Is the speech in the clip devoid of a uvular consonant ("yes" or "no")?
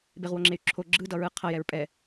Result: no